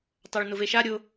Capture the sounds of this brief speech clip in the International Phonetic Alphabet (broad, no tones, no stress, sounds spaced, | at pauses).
tˤ a ɭ n ʊ v e ʃ a ɾʲ ʊ